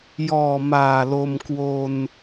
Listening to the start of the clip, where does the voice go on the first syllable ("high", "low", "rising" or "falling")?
low